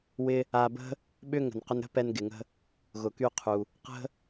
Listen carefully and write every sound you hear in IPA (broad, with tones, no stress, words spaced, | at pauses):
wɪ˧ | a˧bə̤˥ | ɓʏ˥ŋə̤˩n qʏ˧nɾə̤˥ pɛ˧nɡɪ˩ŋə̤˧ | ɣʊ˩ky˧ qʰu˩ | qə̤˥